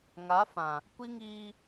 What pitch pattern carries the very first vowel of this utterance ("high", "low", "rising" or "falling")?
rising